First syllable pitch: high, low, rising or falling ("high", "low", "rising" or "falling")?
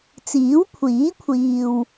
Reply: rising